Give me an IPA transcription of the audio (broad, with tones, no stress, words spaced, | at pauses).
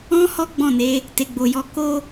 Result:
ɔ̃˧ hɔ˦ɡ͡bɔ̃˦˨ne˨˦ | te˨ɡ͡bo˨jɔ˧ ko˦